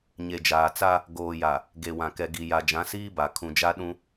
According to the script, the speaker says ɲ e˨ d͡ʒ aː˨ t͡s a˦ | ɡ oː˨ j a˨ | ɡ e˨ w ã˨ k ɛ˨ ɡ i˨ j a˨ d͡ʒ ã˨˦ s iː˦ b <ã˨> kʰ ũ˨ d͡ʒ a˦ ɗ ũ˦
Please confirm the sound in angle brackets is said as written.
no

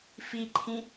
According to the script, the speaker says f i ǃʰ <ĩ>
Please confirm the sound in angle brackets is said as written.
yes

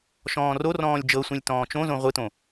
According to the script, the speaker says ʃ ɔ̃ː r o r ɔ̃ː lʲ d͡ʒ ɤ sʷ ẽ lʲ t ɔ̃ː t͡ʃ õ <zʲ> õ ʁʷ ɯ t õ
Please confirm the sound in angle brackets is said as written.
no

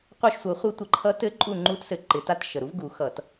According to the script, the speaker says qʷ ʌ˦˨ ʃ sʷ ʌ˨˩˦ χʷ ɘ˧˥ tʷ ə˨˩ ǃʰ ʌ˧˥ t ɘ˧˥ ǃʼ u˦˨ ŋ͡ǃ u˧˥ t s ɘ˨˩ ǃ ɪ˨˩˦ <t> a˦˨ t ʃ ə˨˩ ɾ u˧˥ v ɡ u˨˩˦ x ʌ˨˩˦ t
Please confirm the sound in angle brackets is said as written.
yes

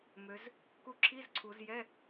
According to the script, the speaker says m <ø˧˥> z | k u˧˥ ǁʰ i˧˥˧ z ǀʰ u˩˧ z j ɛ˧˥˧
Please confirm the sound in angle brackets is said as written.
no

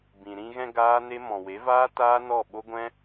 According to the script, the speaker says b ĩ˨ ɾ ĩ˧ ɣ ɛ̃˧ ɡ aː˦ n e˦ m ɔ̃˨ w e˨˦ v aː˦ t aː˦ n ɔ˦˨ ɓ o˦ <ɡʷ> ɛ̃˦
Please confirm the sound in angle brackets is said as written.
yes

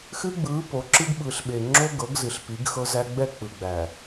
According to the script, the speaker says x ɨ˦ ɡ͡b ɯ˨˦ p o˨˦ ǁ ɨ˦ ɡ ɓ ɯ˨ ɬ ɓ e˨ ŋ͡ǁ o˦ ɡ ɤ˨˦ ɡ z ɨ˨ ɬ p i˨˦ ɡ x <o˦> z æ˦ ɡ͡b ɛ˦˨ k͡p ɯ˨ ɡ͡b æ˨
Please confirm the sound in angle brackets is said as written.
no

